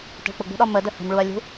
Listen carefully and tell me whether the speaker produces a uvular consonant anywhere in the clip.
no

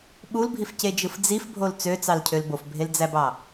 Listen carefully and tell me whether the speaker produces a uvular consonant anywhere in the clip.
no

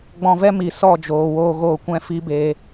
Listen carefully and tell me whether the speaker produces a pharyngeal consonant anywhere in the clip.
no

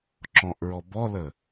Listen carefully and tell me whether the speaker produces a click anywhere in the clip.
yes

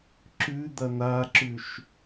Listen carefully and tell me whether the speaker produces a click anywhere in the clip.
yes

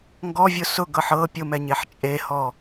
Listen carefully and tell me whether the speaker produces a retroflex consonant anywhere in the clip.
no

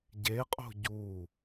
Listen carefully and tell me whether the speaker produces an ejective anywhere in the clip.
yes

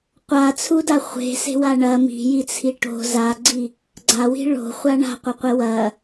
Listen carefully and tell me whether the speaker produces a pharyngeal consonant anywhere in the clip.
no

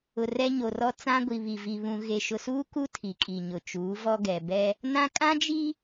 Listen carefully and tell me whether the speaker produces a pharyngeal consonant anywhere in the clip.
no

